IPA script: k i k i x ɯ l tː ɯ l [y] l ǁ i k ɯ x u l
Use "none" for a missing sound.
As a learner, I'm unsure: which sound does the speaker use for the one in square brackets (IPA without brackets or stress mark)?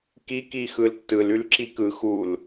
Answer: y